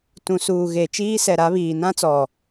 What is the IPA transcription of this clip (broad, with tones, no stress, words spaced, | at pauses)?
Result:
tũ˨ suː˨ɣe˨ t͡ʃiː˦sɛ˨ɾa˨˦βiː˨ nã˦t͡sɔ˨